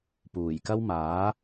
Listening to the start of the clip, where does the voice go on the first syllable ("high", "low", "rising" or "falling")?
low